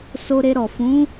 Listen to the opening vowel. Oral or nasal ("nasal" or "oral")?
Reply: oral